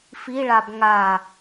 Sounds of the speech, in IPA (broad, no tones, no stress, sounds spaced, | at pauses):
f i ɭ a b ŋ a